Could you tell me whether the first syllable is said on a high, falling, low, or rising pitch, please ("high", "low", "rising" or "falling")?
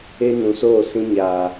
high